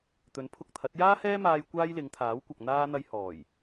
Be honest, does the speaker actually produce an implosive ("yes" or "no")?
no